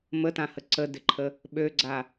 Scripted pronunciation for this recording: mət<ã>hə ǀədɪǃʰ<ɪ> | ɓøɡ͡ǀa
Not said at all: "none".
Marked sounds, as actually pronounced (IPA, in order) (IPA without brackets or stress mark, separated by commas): ã, ə